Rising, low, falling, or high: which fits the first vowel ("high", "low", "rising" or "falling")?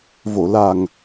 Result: low